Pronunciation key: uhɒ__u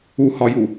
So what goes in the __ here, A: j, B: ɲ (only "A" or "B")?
A